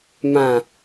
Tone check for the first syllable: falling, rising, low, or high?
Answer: falling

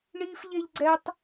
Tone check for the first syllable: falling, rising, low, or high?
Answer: high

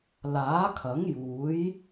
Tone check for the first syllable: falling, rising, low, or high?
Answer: rising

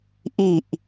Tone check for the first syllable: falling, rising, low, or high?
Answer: low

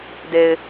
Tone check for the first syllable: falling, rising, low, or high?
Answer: low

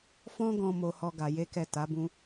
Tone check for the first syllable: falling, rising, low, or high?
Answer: high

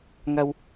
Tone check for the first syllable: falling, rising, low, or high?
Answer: high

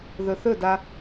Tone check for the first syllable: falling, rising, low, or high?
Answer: low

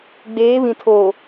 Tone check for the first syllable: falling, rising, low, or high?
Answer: rising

